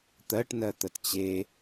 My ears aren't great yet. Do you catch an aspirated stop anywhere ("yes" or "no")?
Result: no